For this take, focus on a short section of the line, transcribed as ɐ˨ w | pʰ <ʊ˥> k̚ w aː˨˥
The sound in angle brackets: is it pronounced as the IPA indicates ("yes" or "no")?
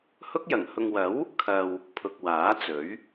no